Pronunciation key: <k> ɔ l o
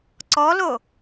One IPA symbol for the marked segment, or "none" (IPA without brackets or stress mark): ǀ